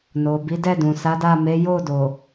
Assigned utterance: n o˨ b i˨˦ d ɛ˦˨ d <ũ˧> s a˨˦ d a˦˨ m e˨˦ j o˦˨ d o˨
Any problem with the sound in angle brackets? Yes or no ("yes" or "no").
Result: yes